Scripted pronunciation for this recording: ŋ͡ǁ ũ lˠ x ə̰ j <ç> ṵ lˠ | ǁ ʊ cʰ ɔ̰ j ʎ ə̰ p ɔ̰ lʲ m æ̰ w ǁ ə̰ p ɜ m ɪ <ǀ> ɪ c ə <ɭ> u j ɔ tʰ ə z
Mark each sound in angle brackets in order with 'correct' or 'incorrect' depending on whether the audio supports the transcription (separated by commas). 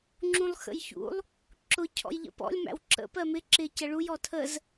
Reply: correct, incorrect, correct